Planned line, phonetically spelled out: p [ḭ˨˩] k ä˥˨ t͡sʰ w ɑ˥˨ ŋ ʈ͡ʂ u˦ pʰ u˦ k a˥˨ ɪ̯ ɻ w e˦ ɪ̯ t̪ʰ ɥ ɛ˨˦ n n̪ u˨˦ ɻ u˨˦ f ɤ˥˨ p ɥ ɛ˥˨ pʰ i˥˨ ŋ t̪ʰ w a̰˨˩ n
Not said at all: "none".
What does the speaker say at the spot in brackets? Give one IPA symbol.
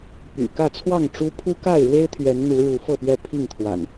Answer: y̰˨˩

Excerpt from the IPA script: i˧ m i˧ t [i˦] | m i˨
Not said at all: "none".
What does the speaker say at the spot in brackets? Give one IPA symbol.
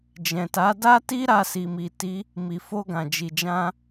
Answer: i˦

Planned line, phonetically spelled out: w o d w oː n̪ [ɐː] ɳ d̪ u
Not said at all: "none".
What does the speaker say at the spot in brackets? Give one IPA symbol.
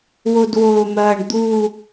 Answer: ɐː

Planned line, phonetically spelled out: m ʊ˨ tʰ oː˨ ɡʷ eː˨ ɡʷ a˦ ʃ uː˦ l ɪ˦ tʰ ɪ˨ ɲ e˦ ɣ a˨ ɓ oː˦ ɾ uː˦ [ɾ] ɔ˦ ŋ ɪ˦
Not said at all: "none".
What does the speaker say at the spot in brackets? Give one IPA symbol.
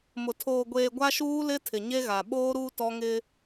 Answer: t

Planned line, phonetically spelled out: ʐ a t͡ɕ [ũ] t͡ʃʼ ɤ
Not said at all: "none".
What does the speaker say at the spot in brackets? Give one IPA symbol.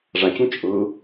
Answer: ũ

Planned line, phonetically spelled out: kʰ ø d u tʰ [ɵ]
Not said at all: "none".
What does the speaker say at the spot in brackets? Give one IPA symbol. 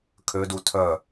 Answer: œ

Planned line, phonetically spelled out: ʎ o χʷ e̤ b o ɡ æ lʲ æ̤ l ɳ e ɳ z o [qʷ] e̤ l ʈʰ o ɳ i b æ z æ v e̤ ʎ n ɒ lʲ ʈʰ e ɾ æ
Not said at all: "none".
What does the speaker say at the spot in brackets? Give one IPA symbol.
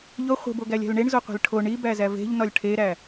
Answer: qʷ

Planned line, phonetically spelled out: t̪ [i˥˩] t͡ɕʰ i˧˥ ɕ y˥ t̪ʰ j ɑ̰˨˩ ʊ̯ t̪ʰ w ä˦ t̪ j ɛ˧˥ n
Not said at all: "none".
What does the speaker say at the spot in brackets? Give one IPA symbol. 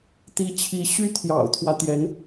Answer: i˧˥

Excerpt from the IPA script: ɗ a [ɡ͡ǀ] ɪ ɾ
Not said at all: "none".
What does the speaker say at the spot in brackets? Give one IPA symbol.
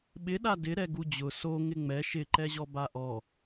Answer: d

